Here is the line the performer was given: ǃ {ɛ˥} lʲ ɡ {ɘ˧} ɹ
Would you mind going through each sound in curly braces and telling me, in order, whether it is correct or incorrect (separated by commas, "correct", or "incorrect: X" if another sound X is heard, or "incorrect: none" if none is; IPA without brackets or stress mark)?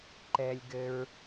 incorrect: ɛ˧, correct